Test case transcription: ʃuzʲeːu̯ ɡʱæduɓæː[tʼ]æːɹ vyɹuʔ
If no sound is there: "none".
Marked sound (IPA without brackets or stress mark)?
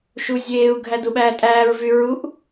tʼ